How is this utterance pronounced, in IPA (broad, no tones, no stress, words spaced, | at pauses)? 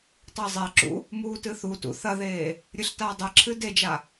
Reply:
tˤezˤɛǁṵ | muːtɨθutṵ θɐðeː | ɾʲɨɬtaːdˤeǁʰɨ ded͡ʒa